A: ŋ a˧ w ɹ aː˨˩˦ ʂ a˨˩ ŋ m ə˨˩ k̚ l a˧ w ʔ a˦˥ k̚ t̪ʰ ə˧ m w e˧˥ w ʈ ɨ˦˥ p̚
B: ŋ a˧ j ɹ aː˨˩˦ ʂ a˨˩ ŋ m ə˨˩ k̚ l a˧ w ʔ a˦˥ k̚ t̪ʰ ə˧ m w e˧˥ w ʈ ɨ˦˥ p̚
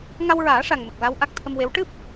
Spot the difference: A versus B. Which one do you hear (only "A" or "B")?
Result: A